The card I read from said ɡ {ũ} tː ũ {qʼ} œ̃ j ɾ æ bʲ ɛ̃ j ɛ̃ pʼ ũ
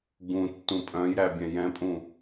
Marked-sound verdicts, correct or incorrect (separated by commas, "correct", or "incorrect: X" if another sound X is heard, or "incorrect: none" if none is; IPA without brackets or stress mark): correct, incorrect: pʼ